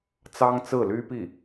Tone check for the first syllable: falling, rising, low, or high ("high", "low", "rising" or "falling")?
high